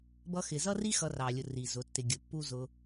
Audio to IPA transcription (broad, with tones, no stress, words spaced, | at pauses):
bʌ˧xɪ˨zʌ˦ri˦ xʌ˧rɑ˨lʲʊ˨ ri˨zʊ˨˦tːɪ˧ ɡʲʊ˨pːu˦zʊ˧